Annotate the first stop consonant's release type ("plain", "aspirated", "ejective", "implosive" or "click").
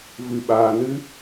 implosive